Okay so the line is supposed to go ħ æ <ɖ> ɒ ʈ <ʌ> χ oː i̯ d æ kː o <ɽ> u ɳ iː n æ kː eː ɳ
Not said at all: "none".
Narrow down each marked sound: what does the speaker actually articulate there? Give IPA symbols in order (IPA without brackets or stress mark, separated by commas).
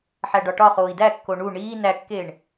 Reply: ɖ, ɒ, ɳ